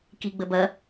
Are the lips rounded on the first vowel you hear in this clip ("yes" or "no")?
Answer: no